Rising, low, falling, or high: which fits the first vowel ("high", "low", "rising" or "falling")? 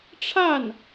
falling